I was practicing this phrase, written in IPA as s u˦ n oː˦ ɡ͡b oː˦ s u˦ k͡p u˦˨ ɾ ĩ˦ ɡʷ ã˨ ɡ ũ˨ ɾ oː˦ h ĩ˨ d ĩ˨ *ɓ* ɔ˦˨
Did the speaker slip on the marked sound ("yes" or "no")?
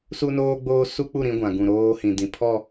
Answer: yes